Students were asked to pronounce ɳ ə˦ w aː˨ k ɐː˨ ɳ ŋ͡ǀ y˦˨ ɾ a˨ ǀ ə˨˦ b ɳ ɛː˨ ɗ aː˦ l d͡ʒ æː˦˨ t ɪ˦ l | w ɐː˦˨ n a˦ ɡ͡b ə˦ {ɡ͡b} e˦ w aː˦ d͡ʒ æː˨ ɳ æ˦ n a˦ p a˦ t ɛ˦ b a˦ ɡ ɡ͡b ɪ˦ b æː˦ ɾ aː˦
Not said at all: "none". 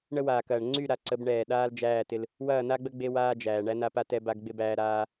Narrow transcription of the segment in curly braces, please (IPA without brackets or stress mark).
ɡ͡b